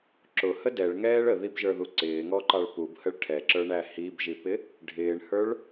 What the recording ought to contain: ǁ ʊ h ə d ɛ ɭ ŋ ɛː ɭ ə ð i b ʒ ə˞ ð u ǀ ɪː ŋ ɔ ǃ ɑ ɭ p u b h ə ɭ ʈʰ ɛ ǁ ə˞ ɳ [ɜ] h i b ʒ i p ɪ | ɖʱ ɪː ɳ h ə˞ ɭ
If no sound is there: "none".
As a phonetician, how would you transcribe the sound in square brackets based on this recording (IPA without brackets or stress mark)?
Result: æ